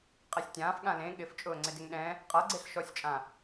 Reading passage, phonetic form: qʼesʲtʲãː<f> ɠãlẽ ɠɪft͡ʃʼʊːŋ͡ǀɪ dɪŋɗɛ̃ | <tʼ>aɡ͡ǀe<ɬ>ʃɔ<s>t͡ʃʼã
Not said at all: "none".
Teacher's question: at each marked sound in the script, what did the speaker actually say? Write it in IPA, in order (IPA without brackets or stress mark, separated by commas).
f, qʼ, ɬ, sʲ